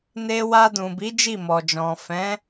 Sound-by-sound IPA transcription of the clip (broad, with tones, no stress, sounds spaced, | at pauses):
n e˧ w a˧ d ũ˨ b i˨˦ d͡ʒ i˦˨ m ɔ˨ d͡ʒ ɔ̃˨ f ɛ̃˨˦